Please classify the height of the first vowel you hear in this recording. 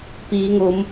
high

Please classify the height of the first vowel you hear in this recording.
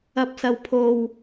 low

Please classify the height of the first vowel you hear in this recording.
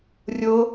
mid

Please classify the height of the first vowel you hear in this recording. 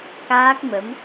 low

